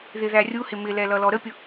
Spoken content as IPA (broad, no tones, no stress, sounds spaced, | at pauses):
ð ɪ ð æ rʲ u h ɪ m ɪ l ɛ l ʌ l ɔ ɾ ə pʲ ʊ